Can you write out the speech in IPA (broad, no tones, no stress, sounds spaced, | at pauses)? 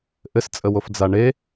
ʔ ɘ s t͡sʼ ə w o f d͡z a ɳ e